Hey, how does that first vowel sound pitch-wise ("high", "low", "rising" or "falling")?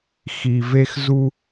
low